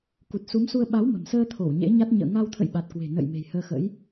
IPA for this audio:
k u˨˩ t̚ s u˨˦ m s u˧ ə̯ ɓ a˨˦ w m ə̤˨˩ m s əː˧ t̪ʰ o˧˩ w ɲ ḛ˧˥ ɲ a˦˥ t̚ ɲ ə̰ː˧˨ ŋ a˧ w t̪ʰ ə̰˧˨ j ɓ a˨˩ t̚ k w e̤˨˩ n ə̰˧˨ j m e̤˨˩ j h əː˧ x ə̰˧˥ j

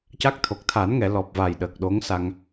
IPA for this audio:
c a˦˥ k̚ t̪ʰ o˨˩ k̚ t̪ʰ a˨˩˦ n ŋ ɛ˨˩˨ l ɔ˨˩ p̚ v a˨˩ j ɗ əː˨˩ k̚ ɗ o˧˥ ŋ s a˧ ŋ

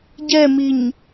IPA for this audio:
ɟ ɛ m i ɲ

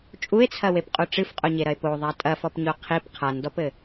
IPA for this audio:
t͡ʃʼ u e̯ t͡sʰ ɐ w e p qʼ u ʈ͡ʂ ɨ f qʼ o ɲ e ɾ ɐ e̯ p o ðˤ a tʼ ɐ f ɔ p ɲ o qʰ i p qʰ a n d ɔ p ɘ

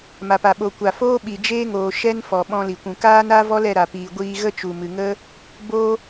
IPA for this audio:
m a˨ p a˨ ɓ o˨ kʷ a˨ f oː˦ ɓ i˨ d͡ʒ eː˦ ŋ oː˨ ʃ ɛ˦ n f ɔ˨ ɓ ɔ̃˧ l i˨ kʷ ũ˨ k aː˦ n a˦ v ɔ˦ l ɛ˧ ɾ a˨ p iː˨ ɡʷ iː˧ ɣ ə˦ t͡ʃ u˨ m ɨ˨ ŋ ə˦ | b o˦

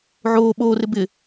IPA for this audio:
ʕ oː ɓ oː r ɪ b ɪ

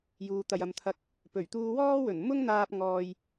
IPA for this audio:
j uː˨ t̪ ɐ˨ j ɐ˨ m t̪ʰ ɐ˧ k̚ | p ɵ˨˩ ɥ t̪ uː˧ w ɔː˥ w ɵ˨˩ n m ʊ˥ ŋ n̪ aː˧ p̚ ŋ ɔː˧ j

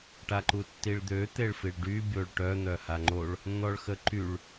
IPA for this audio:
ʈ a ǃ u tː i ɭ d̪ ø t̪ e ɭ f i ɭ ɖ y bʲ o ɭ ʈ œ n̪ œ h a ŋ͡ǃ o ɭ | n̪ ɔ ɭ x ə ǃ y ɭ

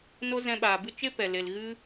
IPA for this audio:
n o˦ z ɛ̃˧ ɓ aː˨ b ɨ˦ t͡ʃ e˦ p ɛ˨ l e˨ l ɣ ɨ˦

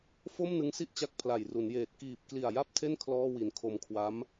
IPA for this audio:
f o˥˩ m n ɯ˦˥ ŋ s i˥˩ ʔ t͡ɕ a˦˥ k̚ pʰ l a˨˩ j r u˩˦ n j eː˨˩ t̚ k iː˨˩ p̚ k l i˨˩ a̯ j a˥˩ p̚ tʰ e˥˩ n kʰ l ɔː˥˩ w i˨˩ n kʰ o˧ m kʰ w a˦˥ m

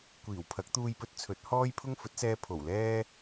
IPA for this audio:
kʷ iː˨˩ w pʰ ɐ˨˥ k̚ t̪ uː˧ j p ɵ˧ t̚ t͡sʰ ɵ˨˥ t̚ h ɔː˥ j pʰ ʊ˥ ŋ f ɵ˨˥ t̚ s ɛː˧ pʰ o˨˩ w l ɛː˥

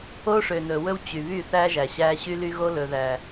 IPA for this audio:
o˦ ʂ ø˨ n ɵ˨ w ɵ˦ w t͡ɕ y˨ β y˦˨ θ æ˦ ʒ æ˨ ɕ æ˦ ɕ y˦ l y˦ ɣ o˦ l ɵ˨ ð æ˨

